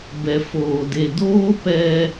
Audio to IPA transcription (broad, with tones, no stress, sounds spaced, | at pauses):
b ɛ˨ f oː˨ d e˨ d oː˦ p ɛ˦